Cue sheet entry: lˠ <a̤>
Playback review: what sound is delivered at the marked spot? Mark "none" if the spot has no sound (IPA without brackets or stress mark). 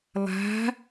a̤